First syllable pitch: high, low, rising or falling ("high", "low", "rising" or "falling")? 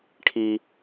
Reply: low